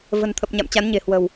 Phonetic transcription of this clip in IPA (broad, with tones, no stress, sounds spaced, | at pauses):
v ə̤˨˩ n t̪ʰ ə˨˩ p̚ ɲ a̰˧˨ m t͡ɕ a˨˦ n ɲ e̤˨˩ h w ə̤˨˩ w